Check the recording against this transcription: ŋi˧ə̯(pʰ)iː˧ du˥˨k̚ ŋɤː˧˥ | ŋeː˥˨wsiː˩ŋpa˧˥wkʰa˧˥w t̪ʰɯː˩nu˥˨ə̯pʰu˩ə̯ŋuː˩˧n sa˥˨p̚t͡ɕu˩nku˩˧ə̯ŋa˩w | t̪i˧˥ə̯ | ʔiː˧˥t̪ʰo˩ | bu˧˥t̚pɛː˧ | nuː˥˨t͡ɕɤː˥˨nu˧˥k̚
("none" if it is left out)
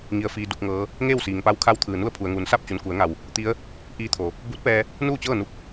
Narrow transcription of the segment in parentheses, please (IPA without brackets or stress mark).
f